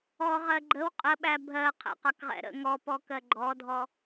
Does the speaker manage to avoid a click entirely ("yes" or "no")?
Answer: no